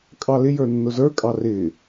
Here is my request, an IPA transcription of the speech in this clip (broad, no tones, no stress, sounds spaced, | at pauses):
kʼ ɑ l ɪ j ə˞ nː ʊ z ə˞ kʼ ɑ r ɪ